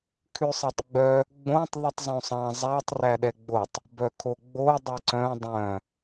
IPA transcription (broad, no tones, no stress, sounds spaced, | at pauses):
kʰ ʉ sˤ ɛ tˤ ɡ͡b œ | ɡ͡b õ tˤ ðˤ ʉ tˤ zˤ õ sˤ ɑ̃ zˤ æ tˤ r æ ɗ ɛ ɡ͡b o tˤ | b œ kʰ o ɡ͡b o dˤ ɛ ǀ œ̃ dˤ œ̃